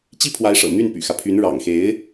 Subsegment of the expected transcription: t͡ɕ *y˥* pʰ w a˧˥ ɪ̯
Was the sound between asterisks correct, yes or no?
no